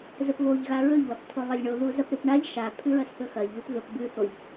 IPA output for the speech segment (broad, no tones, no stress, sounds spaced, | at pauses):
z ɵ p β o ʎ ɣ a ɹ ɵ ʎ w ɐ p tʰ o lˠ ɐ lʲ ɳ o ð u z ɐ p ɾ ɨ p ɳ a ʎ ʃ a pʰ ʉ ɹ ɐ s θ ɵ x ɐ ʎ β ʉ p ð ɵ p b ʉ θ o ʎ